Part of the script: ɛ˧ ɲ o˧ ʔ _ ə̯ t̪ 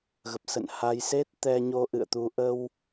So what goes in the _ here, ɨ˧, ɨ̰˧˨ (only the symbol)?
ɨ̰˧˨